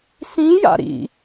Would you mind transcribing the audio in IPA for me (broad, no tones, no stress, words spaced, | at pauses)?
sĩja̰ ɾḭ